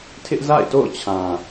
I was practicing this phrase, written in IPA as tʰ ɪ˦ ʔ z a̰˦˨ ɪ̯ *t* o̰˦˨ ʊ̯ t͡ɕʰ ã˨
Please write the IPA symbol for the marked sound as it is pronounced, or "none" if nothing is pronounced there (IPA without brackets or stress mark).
t